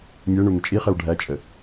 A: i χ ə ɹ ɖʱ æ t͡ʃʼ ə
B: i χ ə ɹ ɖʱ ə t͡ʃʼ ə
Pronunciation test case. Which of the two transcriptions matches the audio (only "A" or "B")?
A